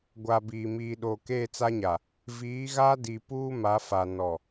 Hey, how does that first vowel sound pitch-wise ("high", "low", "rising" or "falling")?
low